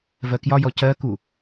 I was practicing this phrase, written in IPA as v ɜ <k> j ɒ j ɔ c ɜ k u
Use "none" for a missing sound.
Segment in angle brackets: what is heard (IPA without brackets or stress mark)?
k